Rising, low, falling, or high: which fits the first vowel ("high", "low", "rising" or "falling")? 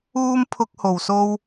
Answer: high